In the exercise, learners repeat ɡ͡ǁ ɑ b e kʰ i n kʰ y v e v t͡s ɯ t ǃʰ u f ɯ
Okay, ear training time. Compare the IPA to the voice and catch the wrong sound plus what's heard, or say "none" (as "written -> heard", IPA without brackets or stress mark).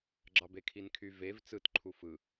none